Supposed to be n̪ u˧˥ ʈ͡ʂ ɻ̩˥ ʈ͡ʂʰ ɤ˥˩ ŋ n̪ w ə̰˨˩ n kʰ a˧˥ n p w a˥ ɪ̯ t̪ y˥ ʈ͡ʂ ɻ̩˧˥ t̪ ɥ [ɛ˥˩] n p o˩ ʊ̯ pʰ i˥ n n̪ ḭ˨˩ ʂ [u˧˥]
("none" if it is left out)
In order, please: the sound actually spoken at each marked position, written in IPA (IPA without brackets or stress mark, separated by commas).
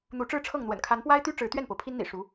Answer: ɛ˥˩, u˧˥